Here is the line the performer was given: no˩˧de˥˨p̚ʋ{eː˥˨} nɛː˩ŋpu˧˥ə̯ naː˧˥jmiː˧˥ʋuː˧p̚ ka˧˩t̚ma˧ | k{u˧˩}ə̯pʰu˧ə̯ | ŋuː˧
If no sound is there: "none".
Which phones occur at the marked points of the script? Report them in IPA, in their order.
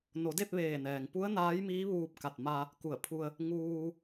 eː˧˩, u˧˩

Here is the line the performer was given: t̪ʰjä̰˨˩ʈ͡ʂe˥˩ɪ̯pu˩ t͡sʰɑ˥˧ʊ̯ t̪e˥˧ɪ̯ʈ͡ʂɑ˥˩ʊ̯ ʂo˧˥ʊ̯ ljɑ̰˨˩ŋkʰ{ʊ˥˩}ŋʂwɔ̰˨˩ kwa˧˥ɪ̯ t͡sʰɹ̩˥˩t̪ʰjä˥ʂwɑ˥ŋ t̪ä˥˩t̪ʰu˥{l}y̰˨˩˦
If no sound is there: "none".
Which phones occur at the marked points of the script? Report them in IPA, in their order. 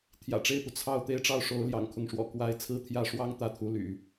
ʊ˥˩, l

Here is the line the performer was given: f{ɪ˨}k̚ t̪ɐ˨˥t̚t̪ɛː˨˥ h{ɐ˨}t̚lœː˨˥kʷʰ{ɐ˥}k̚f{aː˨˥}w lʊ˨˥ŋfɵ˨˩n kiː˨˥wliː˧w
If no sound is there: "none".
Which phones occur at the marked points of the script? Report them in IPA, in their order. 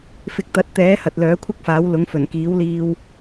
ɪ˨, ɐ˨, ɐ˥, aː˨˥

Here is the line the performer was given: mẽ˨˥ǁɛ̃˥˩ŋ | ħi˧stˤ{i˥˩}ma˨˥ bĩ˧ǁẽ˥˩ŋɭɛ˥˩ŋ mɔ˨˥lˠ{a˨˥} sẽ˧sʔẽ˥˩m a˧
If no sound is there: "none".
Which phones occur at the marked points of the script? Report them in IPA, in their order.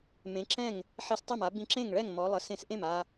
e˥˩, ə˨˥

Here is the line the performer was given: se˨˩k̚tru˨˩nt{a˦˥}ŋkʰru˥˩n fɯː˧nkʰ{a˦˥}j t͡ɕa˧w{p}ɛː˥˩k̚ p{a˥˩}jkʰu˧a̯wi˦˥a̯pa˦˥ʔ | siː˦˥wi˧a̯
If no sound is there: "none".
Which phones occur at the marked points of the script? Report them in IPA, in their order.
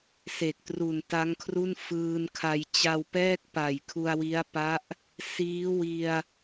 a˦˥, a˧, p, a˨˩

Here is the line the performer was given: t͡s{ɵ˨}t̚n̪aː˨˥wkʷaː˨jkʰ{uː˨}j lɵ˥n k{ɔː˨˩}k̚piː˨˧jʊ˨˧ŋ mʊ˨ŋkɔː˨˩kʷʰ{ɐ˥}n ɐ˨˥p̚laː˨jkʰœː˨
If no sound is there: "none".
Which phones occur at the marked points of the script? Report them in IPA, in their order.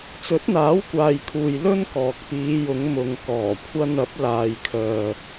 ɵ˨˥, uː˨, ɔː˨, ɐ˧

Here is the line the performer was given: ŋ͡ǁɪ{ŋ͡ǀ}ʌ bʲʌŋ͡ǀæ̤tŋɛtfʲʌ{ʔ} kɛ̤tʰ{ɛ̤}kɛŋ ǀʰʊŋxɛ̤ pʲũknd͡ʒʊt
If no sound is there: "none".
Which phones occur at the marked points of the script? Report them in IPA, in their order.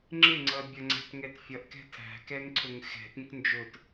ŋ͡ǀ, ʔ, æ̤

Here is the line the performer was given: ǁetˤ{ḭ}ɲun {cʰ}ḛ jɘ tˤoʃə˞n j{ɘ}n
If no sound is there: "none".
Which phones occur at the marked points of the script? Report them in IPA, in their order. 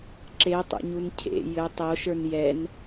ḛ, cʰ, ɛ

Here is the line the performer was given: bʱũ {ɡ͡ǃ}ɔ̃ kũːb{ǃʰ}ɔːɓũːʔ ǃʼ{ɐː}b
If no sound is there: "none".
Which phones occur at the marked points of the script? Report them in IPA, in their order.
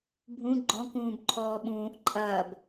ɡ͡ǃ, ǃʰ, ɐː

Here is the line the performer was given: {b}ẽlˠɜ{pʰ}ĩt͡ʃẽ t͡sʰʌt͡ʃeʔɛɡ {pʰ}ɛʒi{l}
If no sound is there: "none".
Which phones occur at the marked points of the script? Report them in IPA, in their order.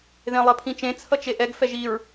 ð, pʰ, f, ɹ

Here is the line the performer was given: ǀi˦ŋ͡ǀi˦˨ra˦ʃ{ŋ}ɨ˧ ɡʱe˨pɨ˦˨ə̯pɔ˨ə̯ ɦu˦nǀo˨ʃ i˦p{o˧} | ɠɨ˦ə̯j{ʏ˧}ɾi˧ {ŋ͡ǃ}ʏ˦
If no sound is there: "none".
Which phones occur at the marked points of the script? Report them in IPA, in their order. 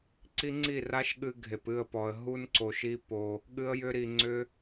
ɠ, o˧, ʏ˦, ŋ͡ǀ

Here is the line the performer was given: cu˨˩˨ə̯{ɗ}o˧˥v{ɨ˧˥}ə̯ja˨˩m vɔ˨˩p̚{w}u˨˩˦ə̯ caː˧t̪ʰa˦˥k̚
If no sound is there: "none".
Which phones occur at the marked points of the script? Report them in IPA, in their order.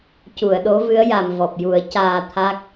ɗ, ɨ˧˥, j

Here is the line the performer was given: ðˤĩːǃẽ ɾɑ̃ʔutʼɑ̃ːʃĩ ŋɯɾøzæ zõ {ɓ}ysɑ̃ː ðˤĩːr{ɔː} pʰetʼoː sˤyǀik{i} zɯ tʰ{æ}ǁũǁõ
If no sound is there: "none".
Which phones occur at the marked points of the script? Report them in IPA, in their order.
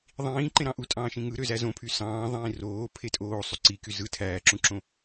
pʰ, oː, y, æː

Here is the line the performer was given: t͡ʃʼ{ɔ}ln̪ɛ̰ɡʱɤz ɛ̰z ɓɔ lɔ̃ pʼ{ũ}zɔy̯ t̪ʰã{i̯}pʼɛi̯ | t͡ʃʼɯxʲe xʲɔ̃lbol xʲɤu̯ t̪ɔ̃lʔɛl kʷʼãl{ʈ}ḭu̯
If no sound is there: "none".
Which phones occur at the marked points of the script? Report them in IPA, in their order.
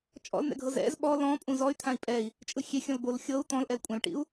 ɔ̰, ũ, i̯, ʈ

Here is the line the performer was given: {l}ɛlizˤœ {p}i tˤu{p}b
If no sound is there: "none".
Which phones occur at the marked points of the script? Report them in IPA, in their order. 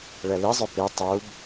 ɭ, p, none

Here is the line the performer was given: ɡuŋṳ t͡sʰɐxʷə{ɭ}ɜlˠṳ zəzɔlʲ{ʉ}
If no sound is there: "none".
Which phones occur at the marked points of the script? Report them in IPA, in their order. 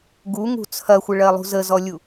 ɭ, u

